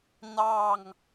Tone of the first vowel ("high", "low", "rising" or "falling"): falling